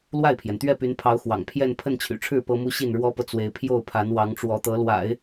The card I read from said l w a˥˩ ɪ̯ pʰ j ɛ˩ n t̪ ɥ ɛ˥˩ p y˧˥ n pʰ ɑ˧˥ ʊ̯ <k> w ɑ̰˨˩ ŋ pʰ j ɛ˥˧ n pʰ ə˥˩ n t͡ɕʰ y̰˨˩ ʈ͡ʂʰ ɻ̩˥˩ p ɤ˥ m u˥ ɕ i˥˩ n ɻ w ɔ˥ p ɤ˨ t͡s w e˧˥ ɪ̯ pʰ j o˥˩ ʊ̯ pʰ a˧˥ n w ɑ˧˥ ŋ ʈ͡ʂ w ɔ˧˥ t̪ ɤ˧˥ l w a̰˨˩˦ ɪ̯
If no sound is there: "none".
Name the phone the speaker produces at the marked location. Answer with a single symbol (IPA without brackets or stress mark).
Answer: x